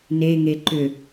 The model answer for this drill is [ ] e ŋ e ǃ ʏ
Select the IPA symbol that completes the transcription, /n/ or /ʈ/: n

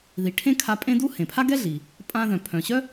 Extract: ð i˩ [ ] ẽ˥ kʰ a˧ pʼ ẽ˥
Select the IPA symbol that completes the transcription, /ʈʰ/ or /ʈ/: ʈʰ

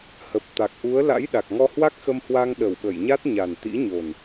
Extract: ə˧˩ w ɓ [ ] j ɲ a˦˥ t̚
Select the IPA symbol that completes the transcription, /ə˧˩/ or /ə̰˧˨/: ə˧˩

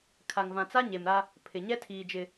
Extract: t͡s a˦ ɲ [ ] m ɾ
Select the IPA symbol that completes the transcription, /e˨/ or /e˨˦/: e˨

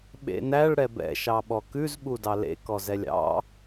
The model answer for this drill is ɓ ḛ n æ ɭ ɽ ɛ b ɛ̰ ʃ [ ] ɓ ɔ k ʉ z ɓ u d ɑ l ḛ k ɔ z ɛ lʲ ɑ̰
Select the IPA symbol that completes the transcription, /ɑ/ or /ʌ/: ɑ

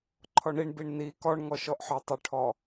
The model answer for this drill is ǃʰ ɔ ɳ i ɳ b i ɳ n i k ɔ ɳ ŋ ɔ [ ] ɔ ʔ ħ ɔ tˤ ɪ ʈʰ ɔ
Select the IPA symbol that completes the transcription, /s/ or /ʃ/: ʃ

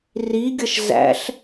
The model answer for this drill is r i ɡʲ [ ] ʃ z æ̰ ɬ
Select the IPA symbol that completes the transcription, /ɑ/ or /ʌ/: ʌ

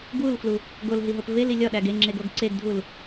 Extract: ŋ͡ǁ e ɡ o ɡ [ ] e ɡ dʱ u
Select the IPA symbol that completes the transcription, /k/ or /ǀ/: ǀ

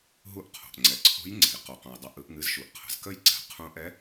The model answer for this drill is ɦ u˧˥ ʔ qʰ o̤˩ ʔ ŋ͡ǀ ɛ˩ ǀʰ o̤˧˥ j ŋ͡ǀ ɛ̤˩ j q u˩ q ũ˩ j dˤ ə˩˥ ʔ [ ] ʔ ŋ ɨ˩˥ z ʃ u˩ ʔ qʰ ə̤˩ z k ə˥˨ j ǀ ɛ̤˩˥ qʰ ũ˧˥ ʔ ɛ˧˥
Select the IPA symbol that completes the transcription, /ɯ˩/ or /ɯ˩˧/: ɯ˩˧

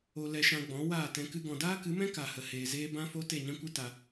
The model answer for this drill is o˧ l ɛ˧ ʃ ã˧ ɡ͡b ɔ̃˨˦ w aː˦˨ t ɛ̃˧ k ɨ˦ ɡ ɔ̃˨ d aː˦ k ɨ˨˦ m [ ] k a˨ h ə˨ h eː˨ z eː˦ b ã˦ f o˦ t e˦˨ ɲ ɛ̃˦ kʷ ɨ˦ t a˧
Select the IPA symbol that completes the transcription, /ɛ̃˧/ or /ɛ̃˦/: ɛ̃˦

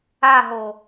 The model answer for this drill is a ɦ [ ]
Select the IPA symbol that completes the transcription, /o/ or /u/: o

